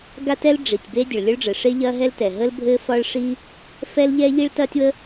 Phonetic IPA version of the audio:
ɡa˥tɛ˥l ɖ͡ʐi˩tʲ be˥dʲə˩ɭlʲɵ˥ɭɖ͡ʐɘ˩ ʂe˥ʎɐː˥ɦɛ˥ltɛ˩ ɦə˥l bʱɘː˥fɒ˥ɭʂiː˥ | fɛ˥lʎɛ˥ ʎi˥ɭtɐː˥tʲwə˥

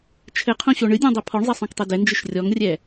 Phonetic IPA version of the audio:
t͡ʃʰɘqʰõɕo ɳɨdʲɔ̃dˤɛ pʰɔɳzˤɛsˤõktˤɛ dɛnd͡ʒɨʃ rʲɔŋrʲɛ

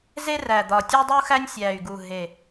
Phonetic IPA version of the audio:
ze˥ræ˨˩d̪ɒ˨˩ tʲo˥dˤu˥xæ˥nʲ sʲæ˨˩y̯ɡu˨˩ ɦe˨˩

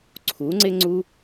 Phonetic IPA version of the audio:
ǀʰu˨˦ŋ͡ǀɪ˦ŋ͡ǀu˦

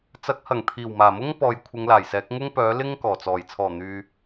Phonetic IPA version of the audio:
t͡sɐ˨˥k̚hɐ˨˩ŋ t̪ʰiː˨˩wmaː˨˩mʊ˥ŋ pɔː˨jkʷʰɪ˨˧ŋlaː˨˩jsɛː˨˥k̚ ŋʊ˥ŋpœː˨˥lɪ˥ŋ kɔː˨˩t͡sɔː˨˩j t͡sʰɔː˨˩n̪yː˨

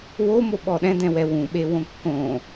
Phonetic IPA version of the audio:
womo ɓɔɗɛ̃dɛ̃wɛ wũɓe wõkːõ

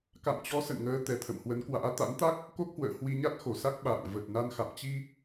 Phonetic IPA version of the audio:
ka̰˧˨mt͡ɕɔ˨˦sə̰˧˨nŋəː˨˦ t̪ɛ˨˩t̪ʰə̰˧˨mhwə˨˦nkwa̰ː˧˥ t̪a̰˧˥nt̪a˦˥k̚ | ko˦˥k̚hwə̰ː˧˨hwi˧ɲa˦˥t̚ xo˧˩sa˦˥k̚ ɓa̰ː˧˨ŋ və˨˩t̚ na˧nxa̰˧˨m t͡ɕi˧

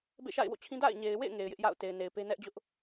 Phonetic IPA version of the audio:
bḛ˦˨ʃa̰˦˨ɪ̯wo̰˦˨t͡ɕʰĩ˦ da̰˦˨ɪ̯ɲe˨ɪ̯wḛ˦˨ɪ̯ ŋe˨ɪ̯jɪ˦ʔja̰˦˨ʊ̯ te˨ɪ̯ne˨ɪ̯pe˦ nɛ˦ʔ d͡ʑʊ˦ʔ

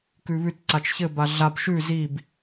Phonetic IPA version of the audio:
kʉβʉtǀat͡ʃ çɘba ɮab ʃʉ zib

